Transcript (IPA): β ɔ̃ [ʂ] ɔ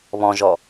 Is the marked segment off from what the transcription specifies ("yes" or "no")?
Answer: yes